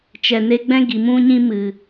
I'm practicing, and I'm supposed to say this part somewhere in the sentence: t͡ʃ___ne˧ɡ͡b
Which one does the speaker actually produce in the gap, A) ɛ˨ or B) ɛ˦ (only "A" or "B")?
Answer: A